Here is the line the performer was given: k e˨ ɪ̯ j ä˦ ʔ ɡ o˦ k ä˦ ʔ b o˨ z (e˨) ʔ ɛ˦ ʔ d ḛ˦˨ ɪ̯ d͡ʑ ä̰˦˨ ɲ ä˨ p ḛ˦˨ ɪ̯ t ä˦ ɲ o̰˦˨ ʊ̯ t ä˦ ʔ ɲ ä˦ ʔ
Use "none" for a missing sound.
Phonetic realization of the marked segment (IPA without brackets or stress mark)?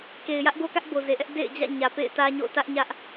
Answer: e˨